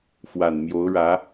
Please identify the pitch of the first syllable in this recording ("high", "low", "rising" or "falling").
low